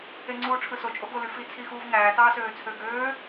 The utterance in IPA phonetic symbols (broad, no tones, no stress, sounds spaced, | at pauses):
e ŋ͡ǀ uː ʈ͡ʂʰ ɯ s o t͡ʃʼ o ɡ o l y f i t͡sʰ i x uː v ŋ æː t ɑː s øː t͡sʰ ø ɡ øː